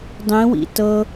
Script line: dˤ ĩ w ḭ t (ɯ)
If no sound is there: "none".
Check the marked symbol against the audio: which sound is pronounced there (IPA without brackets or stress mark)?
ɤ